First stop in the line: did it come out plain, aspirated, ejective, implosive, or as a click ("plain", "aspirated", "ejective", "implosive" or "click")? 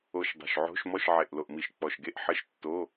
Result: plain